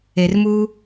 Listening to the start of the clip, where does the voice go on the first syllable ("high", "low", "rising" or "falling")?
low